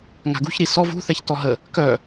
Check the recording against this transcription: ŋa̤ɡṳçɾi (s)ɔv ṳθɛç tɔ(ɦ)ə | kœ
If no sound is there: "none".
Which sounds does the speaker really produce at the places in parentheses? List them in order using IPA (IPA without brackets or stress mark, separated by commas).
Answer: s, ɦ